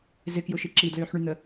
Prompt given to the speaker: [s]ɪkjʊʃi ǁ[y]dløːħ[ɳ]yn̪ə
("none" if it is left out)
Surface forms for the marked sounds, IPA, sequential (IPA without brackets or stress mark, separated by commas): z, i, ɳ